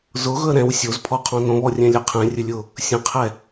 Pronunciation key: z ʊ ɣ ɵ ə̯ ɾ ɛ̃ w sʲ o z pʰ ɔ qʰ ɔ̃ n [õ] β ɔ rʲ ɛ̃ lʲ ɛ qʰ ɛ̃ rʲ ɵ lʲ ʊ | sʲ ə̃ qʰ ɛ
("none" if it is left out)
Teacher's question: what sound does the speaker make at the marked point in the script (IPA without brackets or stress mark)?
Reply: õ